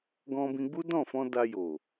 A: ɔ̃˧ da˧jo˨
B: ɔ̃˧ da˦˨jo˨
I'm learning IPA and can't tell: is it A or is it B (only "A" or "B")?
A